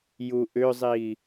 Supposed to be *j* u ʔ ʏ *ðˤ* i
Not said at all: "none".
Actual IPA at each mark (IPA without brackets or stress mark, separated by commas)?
j, zˤ